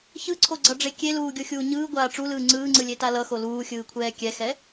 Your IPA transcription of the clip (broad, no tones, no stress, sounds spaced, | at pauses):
ç ɯ ǀʰ o ɡ͡ǀ ʌ ɖ͡ʐ e kʲ e l uː ɡʲ o xʲ uː ɲ ɯː ɡʷ aː ʈ͡ʂ u l ɯː ŋ͡ǀ ɯː ŋ͡ǀ ɯ lʲ e t a l ʌ x o l uː xʲ ɯː kʷʰ ɛː kʲ ɛ x ɛ